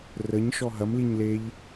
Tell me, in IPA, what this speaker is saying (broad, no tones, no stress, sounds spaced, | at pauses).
r ə ɲ ʃ ɔ ɦ ɐ m l i ɲ l e ʎ